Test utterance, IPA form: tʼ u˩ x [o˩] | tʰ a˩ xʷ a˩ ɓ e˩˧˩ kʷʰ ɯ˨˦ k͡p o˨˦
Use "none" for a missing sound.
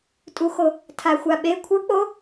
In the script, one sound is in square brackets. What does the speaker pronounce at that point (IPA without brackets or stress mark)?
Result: o˩